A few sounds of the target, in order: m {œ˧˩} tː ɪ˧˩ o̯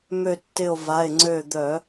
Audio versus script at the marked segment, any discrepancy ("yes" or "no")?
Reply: yes